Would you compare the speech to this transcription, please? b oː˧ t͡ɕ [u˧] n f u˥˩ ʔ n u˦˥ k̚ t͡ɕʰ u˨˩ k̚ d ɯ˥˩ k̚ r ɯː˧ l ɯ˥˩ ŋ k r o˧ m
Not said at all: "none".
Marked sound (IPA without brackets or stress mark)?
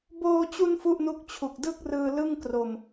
u˧